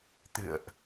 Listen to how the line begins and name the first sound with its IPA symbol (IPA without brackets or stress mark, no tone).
t̪